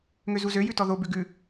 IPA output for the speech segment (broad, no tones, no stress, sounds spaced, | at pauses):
ŋ ø z u z ø j ʉ t ɔ ð o b ʉ ɡ ʉ